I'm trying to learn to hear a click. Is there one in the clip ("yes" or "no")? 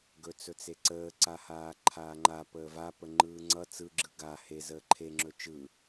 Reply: yes